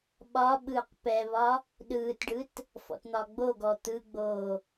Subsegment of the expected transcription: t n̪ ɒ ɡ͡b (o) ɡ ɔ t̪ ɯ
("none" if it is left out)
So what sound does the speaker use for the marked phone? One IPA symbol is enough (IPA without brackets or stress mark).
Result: o